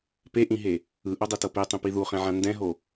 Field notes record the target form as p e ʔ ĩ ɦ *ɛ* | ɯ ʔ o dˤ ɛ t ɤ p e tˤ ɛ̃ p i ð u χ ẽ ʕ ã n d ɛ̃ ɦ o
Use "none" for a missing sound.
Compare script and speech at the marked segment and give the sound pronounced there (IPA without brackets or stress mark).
e